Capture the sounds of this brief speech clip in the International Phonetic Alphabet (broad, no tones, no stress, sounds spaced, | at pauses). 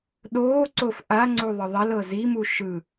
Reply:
ɗ oː ǀ o f ʔ a ŋ͡ǀ u ðˤ ɯ ðˤ ɛ l ɤ z i m u ʃ ɯ